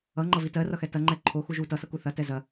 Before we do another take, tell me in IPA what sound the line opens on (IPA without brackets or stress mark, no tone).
ʌ